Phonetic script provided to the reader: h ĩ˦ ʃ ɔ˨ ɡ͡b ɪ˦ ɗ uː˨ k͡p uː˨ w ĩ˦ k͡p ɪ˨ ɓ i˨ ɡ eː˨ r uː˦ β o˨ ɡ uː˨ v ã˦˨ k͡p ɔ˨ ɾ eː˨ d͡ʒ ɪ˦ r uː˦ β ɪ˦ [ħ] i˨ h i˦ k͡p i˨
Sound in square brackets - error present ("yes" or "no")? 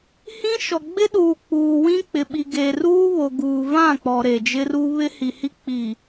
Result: yes